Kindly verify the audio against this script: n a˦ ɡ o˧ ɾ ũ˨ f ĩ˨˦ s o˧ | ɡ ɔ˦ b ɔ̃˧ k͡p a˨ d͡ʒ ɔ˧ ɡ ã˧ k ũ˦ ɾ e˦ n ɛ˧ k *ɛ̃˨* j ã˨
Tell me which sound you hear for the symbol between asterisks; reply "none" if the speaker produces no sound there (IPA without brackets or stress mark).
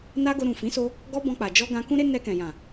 ɛ̃˨